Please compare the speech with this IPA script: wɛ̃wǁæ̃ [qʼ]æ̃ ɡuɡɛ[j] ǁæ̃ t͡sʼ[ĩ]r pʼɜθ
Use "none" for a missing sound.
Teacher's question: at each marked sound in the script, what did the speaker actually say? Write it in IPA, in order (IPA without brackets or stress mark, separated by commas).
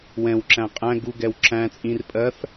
qʼ, w, ĩ